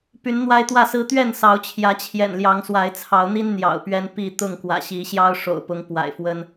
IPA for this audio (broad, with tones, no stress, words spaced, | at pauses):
py˨˦nn̪wa˦ɪ̯t̪wä˥˨sɹ̩˦ t̪ɥɛ˥˨nsɑ˨˦ʊ̯t͡ɕʰjä˨˦ t͡ɕʰjɛ̰˨˩nljɑ˨˦ŋ swa˨˦ɪ̯t͡sʰɑ˨˦ʊ̯n̪i˦n n̪jɑ̰˨˩ʊ̯pɥɛ˦n pi˥˨ t̪ʊ˥˨ŋkwä̰˨˩ɕi˨˦ ɕjɑ˦ʊ̯ʂo̰˨˩ʊ̯pʊ˨˦ŋ pwa̰˨˩ɪ̯fwə˦n